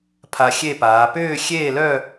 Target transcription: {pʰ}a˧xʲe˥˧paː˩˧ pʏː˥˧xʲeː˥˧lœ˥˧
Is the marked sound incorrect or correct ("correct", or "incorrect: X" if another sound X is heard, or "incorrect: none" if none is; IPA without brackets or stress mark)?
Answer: correct